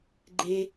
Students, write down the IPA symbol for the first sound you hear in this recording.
ɡ͡ǃ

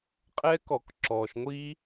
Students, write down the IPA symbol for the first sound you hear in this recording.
qʼ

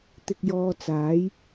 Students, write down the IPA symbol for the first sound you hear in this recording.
t̪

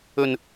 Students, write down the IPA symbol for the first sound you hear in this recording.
ɵ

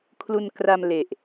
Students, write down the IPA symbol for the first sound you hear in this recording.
kʰ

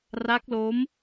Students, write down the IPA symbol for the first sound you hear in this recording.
r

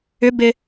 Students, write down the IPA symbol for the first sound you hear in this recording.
ʏ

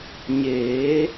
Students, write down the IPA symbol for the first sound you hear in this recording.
ɲ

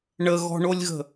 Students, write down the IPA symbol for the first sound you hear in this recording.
ɳ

